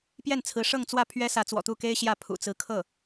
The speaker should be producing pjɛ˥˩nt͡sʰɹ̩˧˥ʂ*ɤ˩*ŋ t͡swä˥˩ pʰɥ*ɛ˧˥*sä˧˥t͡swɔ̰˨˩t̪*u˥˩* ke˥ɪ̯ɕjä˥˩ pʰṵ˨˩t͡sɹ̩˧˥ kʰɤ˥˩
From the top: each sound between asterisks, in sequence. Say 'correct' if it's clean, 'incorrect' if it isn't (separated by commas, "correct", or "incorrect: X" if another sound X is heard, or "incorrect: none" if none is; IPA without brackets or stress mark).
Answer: incorrect: ɤ˥˧, incorrect: ɛ˥, correct